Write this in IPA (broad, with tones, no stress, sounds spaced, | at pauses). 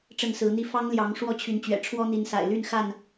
ʈ͡ʂ ə˥˨ n s ɹ̩˨˦ n̪ i˦ f ɑ˦ ŋ l j ɑ˨˦ ŋ ʂ w ɔ˥˨ t͡ɕʰ y˨˦ n t͡ɕ ɥ ɛ̰˨˩ ʈ͡ʂʰ w ɔ˦ n̪ i˨˦ n s a̰˨˩ ɪ̯ l y˥˨ n x a˥˨ n